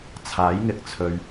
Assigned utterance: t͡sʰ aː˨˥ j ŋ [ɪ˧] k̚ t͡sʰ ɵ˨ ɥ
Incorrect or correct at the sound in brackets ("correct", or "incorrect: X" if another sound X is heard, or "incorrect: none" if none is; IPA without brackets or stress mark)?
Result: correct